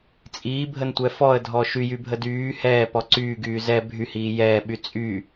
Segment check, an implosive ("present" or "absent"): present